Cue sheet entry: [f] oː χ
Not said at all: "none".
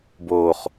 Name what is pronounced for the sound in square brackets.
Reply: b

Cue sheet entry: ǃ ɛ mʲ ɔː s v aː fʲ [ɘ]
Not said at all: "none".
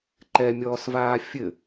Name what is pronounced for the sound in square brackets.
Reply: ɘ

